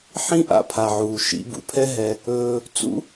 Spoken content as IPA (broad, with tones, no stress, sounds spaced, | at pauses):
ħ ĩ˦ ʔ a̰˧ pʰ a˨ ʕ uː˨ ʃ ḭ˧ b ṵ˨ pʰ ɛ˦ ɦ ɛ˧ | ɵː˧ | t͡s ṵ˦